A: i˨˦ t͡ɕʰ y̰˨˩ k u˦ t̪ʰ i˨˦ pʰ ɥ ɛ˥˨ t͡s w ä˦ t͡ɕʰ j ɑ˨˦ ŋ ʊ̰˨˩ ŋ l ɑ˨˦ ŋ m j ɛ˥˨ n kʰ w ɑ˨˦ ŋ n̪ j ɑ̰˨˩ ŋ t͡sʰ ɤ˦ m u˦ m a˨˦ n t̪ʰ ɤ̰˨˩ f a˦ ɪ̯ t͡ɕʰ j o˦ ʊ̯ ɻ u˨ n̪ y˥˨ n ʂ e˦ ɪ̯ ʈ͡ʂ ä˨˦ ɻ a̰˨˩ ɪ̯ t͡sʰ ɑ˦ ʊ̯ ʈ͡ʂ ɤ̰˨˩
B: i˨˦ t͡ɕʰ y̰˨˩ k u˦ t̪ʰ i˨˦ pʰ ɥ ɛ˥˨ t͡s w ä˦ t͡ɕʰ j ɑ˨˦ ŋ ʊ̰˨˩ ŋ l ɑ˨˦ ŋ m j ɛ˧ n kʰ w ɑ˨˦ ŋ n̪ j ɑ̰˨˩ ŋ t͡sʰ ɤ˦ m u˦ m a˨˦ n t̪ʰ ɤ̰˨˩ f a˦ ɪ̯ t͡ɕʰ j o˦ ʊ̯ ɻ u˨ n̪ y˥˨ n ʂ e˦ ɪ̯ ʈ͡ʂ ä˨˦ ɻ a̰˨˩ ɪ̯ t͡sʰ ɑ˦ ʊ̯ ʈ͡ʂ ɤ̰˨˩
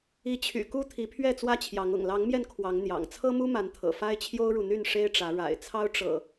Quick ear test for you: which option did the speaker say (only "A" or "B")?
B